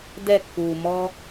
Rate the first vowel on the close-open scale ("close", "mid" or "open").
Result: mid